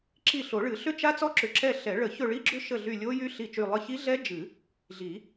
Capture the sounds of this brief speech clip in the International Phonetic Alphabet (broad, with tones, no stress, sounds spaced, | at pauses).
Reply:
ǁ i˦˨ ɬ o˨˩˦ ɭ ɨ˨˩˦ ɬ ʏ˦˥ t͡ʃ a˦˥ t͡s ɔ˦˥ ǁ ʏ˨˩˦ ǁ ɛ˦˨ ɬ ɛ˨˩˦ ɭ ə˨˩˦ ç ɵ˦˨ ɭ i˦˥ ɡ͡ǁ ʏ˦˥ ʃ ə˦˨ ɮ y˦˨ lʲ o˦˥ j y˦˥ ɬ i˦˨ t͡ʃ y˦˨ lˠ ɨ˦˨ ç i˦˥ ɮ ɛ˦˥ d͡ʒ ɨ˨˩˦ | ɮ i˨˩˦